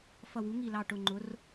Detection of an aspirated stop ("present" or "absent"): absent